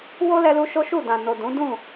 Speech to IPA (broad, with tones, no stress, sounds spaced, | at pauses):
w o˦ l ɛ˧ l u˧ ʃ o˦ ʃ u˦˨ d ã˨ n o˨ d ũ˨˦ d ũ˦˨